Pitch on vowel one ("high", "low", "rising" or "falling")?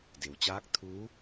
low